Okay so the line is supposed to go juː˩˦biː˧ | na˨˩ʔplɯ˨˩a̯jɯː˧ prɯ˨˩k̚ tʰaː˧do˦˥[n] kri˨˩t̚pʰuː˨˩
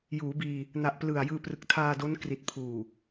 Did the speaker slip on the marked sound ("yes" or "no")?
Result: no